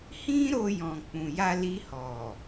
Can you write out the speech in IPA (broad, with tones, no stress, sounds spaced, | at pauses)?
h ĩ˦ ɾ o˧ j ɔ̃˨ k͡p ũ˨ j a˧ l i˧ h ɔ˨